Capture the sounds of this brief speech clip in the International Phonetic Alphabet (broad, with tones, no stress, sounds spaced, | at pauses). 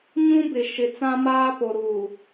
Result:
ɲ ũ˦ b ɪ˨ ʃ ɪ˨ t͡s ã˦ m aː˦ p o˨ ɾ uː˨